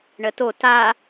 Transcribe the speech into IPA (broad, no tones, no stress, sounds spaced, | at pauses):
ɳ ə t o t a